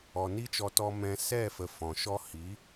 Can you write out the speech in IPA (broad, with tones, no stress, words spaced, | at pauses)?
ɔ˨ni˦t͡ʃɔ˧tɔ˧ mɛ̃˧sɛ˦˨fə˨ fɔ̃˨ʃɔ˧ hi˨˦